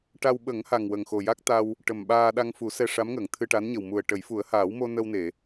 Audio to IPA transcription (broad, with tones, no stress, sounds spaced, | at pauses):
ʈ a˧ w ɓ ə˨˩˦ ŋ h a˨˩ ŋ w ə˨˩ ŋ x o˨˩ j a˦˥ k̚ t̪ a˧ w | ʈ ə˨˩ m ɓ aː˧ ɗ a˧ ŋ f u˨˩˦ s ɛ˧ ʂ a˧˥ m ŋ əː˨˩˨ ŋ t̪ʰ ɨ˧ ʈ a˧˥ n ɲ ə˨˩ w m u˨˩ ə̯ ʈ ə˨˩˦ j f u˨˩˦ ə̯ h aː˨˩˦ w m o˧ n ə˧ w n e˨˩˨